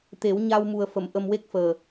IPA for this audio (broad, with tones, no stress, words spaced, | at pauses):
t̪e˨˩˦wɲa˧wmu˨˩ə̯ fə˨˩˨m ʔə˧mwe˦˥k̚fəː˨˩